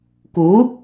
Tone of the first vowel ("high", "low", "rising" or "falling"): rising